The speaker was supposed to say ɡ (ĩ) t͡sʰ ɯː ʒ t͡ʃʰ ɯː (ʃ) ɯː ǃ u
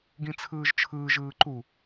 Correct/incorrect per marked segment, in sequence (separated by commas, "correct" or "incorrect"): correct, incorrect